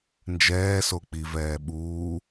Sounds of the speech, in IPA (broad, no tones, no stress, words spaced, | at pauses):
nd͡ʒɛːso k͡pivɛː ɓuː